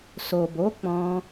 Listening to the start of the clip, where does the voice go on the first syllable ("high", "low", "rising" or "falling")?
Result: low